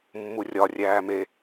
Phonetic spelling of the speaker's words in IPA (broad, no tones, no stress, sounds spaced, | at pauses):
mː u rʲ ɒ rʲ æː m e